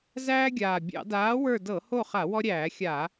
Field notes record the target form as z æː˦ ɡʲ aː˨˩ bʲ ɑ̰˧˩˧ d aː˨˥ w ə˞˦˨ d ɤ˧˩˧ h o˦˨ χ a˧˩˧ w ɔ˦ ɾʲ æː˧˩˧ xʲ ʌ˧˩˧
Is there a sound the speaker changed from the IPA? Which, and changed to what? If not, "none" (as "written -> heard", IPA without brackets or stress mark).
ʌ˧˩˧ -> a˧˩˧